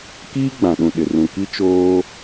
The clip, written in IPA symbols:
k iː˦ ɡ͡b ã˨ ɗ ũ˨ ɗ ɪ˨ r ũ˨ k i˦ t͡ʃ oː˦

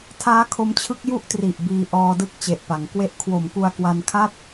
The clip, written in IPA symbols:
tʰ aː˦˥ kʰ o˧ m t͡ɕʰ ɯ˦˥ k̚ j u˦˥ ʔ t r i˨˩ ʔ b iː˧ ʔ ɔː˧ d ɯ˥˩ k̚ t͡ɕ e˨˩ ʔ p a˩˦ ŋ k w e˥˩ ʔ kʰ w o˨˩ m k u˧ a̯ k w a˧ n kʰ a˥˩ t̚

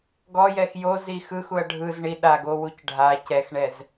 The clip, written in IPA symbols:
ɡ ɔ j ɛ x j o z i x ɯ x u ɐ̯ ɖʱ ɯ z ɳ i ɗ a ɡ o w u c ɖʱ a c ɛ x ɳ ɛ z

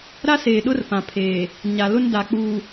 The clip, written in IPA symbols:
ɾ a˦ s eː˨ ɗ ʊ˦ r p ã˨ pʰ eː˨ | ɲ a˨ l ʊ˦ n d a˨ k͡p uː˨

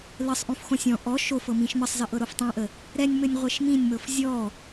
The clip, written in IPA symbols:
l ə sˤ ʔ õ f x õ sʲ ɔ̃ ʔ ɔ ʃ o f ɤ m ĩ ʃ m ə sˤ z ə ʔ ɤ ɾ o f tˤ õ ʔ ə | ɾ ɛ nʲ m ɘ nʲ ʁʷ e ʃ m ĩ nʲ m ɤ f zʲ ɔ

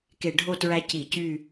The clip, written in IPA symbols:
k e˧˩˧ ɖʱ o˦˨ t ɹ æ˧˥ c i˧˩˧ c y˦˨

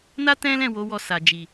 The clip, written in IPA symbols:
n a˦ t ɛ̃˦ l ɛ̃˦˨ w o˨˦ w ɔ˧ s a˨ d͡ʒ i˨

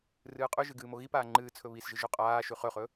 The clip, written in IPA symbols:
r ɨː qʼ ʉ ʒ ɨ ɡ ɨː m o ɣ i p aː ŋ͡ǃ ɨː t͡sʰ ɵ β i s ʒ ɨ ʒ ʉ qʼ aː ʃ ʉ χ ɵ χ ɵ

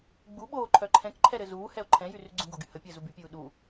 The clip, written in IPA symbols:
ɡ͡b u ɓ oː ǃʰ œ ǃʰ ɛ̃ k ǃʰ ɛ ɾ ɘ z uː h ɛ o̯ ǃʰ ɛ̃ j y r y ɡ͡ǀ ũ ɡ o ɡ y h ə pʲ əː z u b y pʲ uː ɗ u

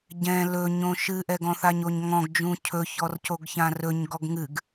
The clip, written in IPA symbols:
ɟ ɛ̃ l ɵ ɲ õ ʃ ɨ ʔ ɛ ɡ ɔ̃ θ a ɲ o ɲ ŋ ɔ̃ ɡ d͡ʒ ũ cʰ ɵ ç ɔ r c o ɡ ç ã r ɵ ɲ ɡ ɔ ɡ ŋ ɨ ɡ

